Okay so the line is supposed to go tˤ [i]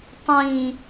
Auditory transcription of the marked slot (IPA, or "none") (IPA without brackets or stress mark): ĩ